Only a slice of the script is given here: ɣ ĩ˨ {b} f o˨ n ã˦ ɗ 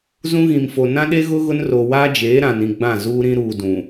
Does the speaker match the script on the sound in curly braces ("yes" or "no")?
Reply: no